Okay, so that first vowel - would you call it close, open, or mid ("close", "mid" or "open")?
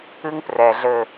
close